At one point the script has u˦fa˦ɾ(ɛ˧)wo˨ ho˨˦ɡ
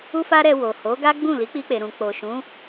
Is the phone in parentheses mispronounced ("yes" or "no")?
no